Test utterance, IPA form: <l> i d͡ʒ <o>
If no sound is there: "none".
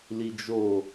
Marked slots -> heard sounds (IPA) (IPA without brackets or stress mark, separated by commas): l, o